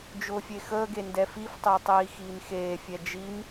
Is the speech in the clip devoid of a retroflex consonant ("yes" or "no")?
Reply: yes